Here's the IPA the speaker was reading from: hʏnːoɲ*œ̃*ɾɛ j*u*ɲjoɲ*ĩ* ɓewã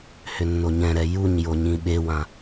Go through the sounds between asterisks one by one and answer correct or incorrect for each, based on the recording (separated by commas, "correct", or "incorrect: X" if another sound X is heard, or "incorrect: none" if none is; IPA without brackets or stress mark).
incorrect: ɛ̃, correct, correct